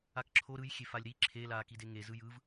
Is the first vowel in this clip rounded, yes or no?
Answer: no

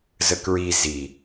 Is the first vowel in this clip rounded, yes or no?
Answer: no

